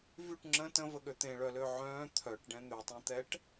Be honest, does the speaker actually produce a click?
yes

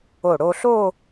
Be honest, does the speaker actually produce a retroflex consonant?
yes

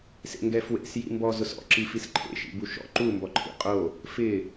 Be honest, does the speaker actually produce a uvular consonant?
yes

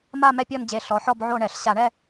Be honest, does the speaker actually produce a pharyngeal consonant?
yes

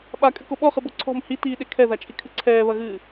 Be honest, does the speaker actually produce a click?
yes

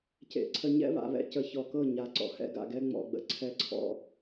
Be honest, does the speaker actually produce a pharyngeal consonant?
no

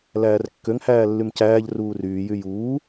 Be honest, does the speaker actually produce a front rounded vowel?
yes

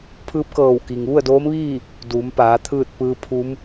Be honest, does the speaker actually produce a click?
no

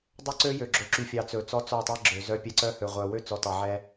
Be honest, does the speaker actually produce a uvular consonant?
yes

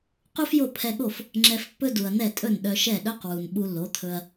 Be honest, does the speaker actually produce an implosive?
yes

